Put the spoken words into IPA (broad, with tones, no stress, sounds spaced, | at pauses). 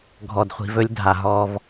ɡʱ ɔ˨ d χʷ i̤˨ v ɵ˦ lʲ dʱ a˨ ɦ ɔ˦ v